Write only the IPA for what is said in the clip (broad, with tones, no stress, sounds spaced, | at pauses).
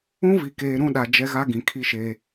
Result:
ũ˦ v i˨ k eː˨ ɾ ũ˦˨ ɗ a˨ d͡ʒ ɛ˦ ɣ a˦ ɡ ĩ˨ kʰ i˦ ʃ eː˦